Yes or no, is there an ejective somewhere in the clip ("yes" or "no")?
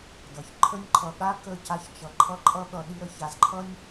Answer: yes